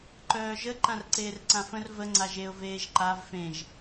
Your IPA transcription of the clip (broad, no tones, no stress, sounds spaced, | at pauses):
ǃ œː ʒ ə ǃ ã r ǀ eː r ǀ ã f ə̃ r v ə ŋ͡ǀ a ʒ e ʊ̯ v eː ʒ ǃ a v f ẽ ʒ